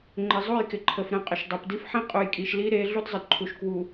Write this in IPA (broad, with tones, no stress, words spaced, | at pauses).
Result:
ŋ͡ǃɪ˨zˤu˦˨jkɪ˨ ǃʰə˨f ɾə̃˦˨qʼə˨ʃ dˤe˨pdi˦fħĩ˦ qʼu˨jkʼi˨ʃli˦ ɾe˨˦ ɮu˦dzˤə˨dǃʰu˨ʃ kwu˨